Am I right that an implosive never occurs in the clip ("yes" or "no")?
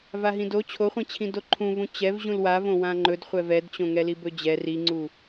yes